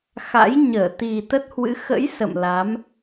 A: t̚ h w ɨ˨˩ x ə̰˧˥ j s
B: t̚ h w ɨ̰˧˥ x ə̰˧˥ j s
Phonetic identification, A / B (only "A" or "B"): B